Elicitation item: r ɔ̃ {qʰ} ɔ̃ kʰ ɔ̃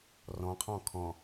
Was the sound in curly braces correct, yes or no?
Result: yes